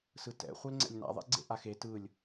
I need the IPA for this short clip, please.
s ɯ t ɛ̰ χʷ e l ŋ͡ǀ ɛ̰ lʲ n a̰ ðˤ ḛ ɡ͡ǀ ḛ ʔ a x e t ɯ lʲ

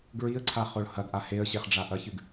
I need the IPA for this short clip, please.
ɡ ɹ i ə̯ ǀʰ a χ o ɭ h ɐ ɡ ʔ a h e ə̯ ɕ e χ ɖ͡ʐ a ʔ ɐ ç ɨ ɡ

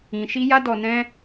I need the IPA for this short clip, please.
ĩ˧ ʃ i˦ j a˦ d ɔ˧ n ɛ̃˦

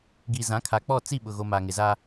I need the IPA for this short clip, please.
ɡ i˨ z ã˨˦ kʰ a˨ k͡p ɔ˦˨ t͡s i˦˨ ɓ ʊ˨ ɣ o˨ m a˨ ŋ ɪ˨ z a˦

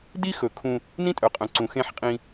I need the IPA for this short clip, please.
d i˦ x ɵ˨ kʰ ũ˦ | n ĩ˦ tʼ œ˨ qʼ œ̃˨ ǀ ũ˨ x ẽ˦˨ ħ qʼ ĩ˦

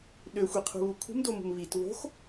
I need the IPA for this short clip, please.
ɗ ø xʷ i qʰ ṳ β u kʰ ṳ m d o m ṳ m β i t β o̤ x

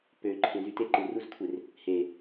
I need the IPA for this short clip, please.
p ø ǃʰ ẽ z y t e ǃ ɯ r u z kʷʰ e r | h e

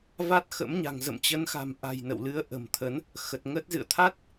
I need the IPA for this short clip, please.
v a˦˥ t̚ x ə̰˧˥ m ɲ a̤˨˩ ŋ z ə̰˧˨ m t͡ɕ ə˨˦ n x a̤˨˩ m ʔ a̤˨˩ j n ə̰˧˨ w l ɨ˨˦ ə̯ ʔ ə̤˨˩ m t̪ʰ ə˨˦ n | x ə˨˩ t̚ ŋ ə˦˥ t̚ z ɨ̰˧˨ ə̯ t̪ʰ a˦˥ t̚

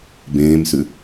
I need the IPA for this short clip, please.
b ẽː m s ʉ

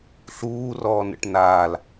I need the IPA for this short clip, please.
ɬ uː r ɔː n ə̰ ʈ n a l

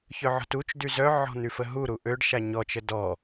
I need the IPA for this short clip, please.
ç œ ʕ ɔ̤ t u t͡ʃ d y z œ ʕ ɔ̤ n̪ y f ə ɦ u ɾ u ʔ ø ɖ ʃ a ɲ ɔ t͡ʃ ə d ɔ

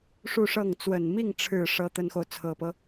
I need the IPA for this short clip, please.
ʂ u˥˧ ʂ ɤ˥˩ ŋ t͡s w ə˨˩ n m i˥˩ ŋ ʈ͡ʂʰ ɻ̩˨˩ ʂ ɤ˥ t̪ ə˥ n x o˨ ʊ̯ t͡sʰ ɤ˨˩ p ɤ˦

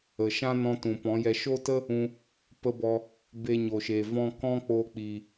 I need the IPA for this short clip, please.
ə˨ ʃ ã˦ n ɔ̃˧ t ũ˨ p ɔ̃˨˦ j ɛ˧ ʃ o˦ t ə˦ | ũ˧ | p ə˦ b ɔ˧ | b e˧ ɲ o˨ ʃ e˨ v ɔ̃˧ k ɔ̃˦ k͡p o˧ k͡p i˨

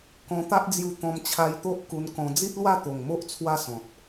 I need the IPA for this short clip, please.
k ɔ̃˧ t̪ a˦ ʔ d͡z j u˧ t̪ ɔ̃˧ m t͡ɕʰ a˧ j t̪ o˦ ʔ k u˧ n k ɔ̃˧ d͡z i˦ t̚ l w a˥˧ t̪ o˨˩ ŋ m o˦ ʔ t͡sʰ w a˥˧ s ɔ̃˨ t̚

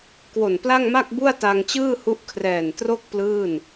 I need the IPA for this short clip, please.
k w o˨˩ n p l a˥˩ ŋ m a˥˩ k̚ b u˥˩ a̯ t a˧ ŋ t͡ɕ ɯː˥˩ h u˦˥ ʔ kʰ r ɛː˨˩ n t r o˥˩ k̚ p l ɯː˥˩ n

